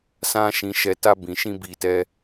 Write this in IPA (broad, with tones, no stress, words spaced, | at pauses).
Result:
sã˧ ʃĩ˨ʃɛ˨ta˧ bĩ˨ʃĩ˧ bi˧tɛ˦